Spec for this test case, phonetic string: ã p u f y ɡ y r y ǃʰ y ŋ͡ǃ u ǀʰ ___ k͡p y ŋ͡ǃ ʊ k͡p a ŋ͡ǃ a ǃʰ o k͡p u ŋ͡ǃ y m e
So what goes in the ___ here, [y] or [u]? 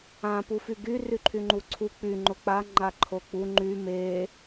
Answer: u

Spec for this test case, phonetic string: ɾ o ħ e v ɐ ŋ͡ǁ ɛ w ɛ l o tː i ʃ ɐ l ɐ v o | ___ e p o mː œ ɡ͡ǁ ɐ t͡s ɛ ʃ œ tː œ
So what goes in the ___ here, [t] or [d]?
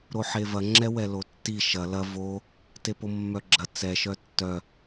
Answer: t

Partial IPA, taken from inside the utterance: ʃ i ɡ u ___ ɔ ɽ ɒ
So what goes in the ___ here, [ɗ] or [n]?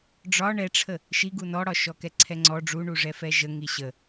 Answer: n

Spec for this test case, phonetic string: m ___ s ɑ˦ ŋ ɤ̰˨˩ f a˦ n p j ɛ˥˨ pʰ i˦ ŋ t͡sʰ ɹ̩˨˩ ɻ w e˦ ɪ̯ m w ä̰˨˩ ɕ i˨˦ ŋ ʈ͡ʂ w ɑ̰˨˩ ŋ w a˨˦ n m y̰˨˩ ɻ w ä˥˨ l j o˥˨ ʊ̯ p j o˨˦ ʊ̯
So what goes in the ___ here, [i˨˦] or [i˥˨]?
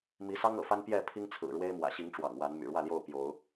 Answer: i˨˦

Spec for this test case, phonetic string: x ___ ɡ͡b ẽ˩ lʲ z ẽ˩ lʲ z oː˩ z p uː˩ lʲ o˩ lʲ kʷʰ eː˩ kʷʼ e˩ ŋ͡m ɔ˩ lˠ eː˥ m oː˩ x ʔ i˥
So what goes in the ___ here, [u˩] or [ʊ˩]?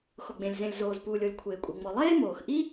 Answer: ʊ˩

